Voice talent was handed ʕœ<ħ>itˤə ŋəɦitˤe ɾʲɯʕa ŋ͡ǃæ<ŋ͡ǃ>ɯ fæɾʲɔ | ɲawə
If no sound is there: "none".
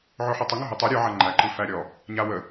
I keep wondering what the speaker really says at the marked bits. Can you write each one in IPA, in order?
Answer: ħ, ǃ

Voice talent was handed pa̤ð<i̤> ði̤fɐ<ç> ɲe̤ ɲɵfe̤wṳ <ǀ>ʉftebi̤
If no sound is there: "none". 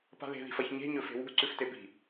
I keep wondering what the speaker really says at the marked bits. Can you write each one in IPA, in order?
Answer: e̤, ç, ǀ

